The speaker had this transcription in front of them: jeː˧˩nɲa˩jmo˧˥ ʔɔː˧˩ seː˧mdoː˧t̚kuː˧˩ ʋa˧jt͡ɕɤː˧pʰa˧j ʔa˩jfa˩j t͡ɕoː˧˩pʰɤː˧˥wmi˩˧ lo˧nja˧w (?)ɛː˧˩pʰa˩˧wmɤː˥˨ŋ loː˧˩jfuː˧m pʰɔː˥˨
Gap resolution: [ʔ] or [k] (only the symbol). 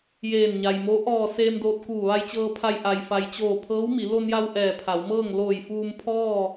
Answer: ʔ